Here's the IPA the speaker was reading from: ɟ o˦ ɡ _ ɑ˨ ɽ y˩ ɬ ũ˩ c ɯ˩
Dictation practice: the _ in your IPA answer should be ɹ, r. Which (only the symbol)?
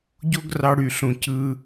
r